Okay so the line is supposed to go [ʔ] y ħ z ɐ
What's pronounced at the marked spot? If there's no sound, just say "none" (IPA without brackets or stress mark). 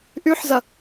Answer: ʔ